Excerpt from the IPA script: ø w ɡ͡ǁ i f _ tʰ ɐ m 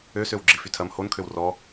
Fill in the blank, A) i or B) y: B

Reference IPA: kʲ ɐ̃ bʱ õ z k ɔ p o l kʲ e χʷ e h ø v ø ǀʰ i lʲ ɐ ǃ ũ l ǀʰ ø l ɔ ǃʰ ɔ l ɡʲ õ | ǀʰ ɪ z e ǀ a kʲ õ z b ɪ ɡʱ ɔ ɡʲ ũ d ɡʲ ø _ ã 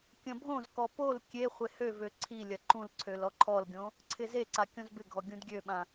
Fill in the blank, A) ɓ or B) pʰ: A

